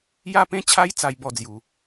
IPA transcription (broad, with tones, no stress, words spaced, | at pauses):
ja˥˧pẽ˦t͡ɕʰa˦j t͡sa˦jbɔ˥˧d͡zju˨˩